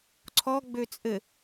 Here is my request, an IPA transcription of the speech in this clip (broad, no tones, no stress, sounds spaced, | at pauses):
ǀʰ ɔ ɡ͡b ø t͡sʼ ɘ